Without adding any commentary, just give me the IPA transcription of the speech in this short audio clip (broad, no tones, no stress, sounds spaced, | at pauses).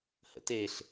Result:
h ə̰ t e ɬ